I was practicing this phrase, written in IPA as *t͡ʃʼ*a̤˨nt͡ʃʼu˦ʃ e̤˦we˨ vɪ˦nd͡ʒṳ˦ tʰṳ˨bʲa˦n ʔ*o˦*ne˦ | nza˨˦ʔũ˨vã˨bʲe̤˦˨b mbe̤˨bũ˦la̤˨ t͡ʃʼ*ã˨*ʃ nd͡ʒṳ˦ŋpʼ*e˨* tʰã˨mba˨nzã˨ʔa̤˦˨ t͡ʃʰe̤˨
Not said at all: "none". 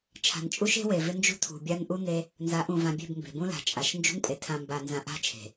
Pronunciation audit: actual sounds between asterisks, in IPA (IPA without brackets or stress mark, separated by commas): t͡ʃʰ, u˦, a˨, e˨